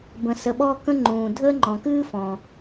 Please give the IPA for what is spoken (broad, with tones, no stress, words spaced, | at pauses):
bə̃˩sə˩ɓɔ˥ kə̃˥ŋ͡ǃũː˩ dʱəː˥ŋ͡ǃɔ̃˩ kɨː˥fɔ̃˩